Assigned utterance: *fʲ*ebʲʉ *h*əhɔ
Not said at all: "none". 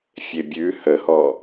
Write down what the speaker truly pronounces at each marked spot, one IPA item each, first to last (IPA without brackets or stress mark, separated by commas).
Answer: fʲ, h